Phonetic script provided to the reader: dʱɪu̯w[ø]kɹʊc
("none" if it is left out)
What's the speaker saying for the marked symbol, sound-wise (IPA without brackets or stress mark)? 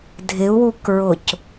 u